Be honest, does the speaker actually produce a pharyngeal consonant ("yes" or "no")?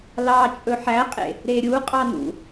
yes